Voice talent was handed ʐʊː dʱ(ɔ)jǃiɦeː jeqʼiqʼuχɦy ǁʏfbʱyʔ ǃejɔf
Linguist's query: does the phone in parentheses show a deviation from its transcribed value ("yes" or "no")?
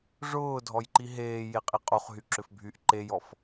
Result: no